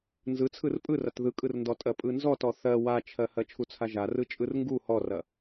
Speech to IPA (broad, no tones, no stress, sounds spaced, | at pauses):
n z ɯ t͡sʰ ɯ r pʼ ɯ r ɐ t ð ɯ kʼ ɯ r n d ɔ tʼ ɜ pʼ ɯ n z ɔ t ɔ θ ɜ w a t͡ʃʰ ɜ h ɜ t͡ʃʰ u t͡sʰ a ʒ a r ɯ t͡ʃʼ ɯ r ŋ ɡ u h ɔ r ɐ